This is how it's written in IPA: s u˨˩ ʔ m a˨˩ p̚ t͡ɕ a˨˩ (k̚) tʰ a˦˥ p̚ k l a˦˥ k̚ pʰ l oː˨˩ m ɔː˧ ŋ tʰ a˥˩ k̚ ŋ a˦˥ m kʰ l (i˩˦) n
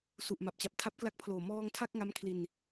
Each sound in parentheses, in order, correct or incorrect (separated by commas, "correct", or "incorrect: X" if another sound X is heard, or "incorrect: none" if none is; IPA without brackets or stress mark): incorrect: p̚, incorrect: i˧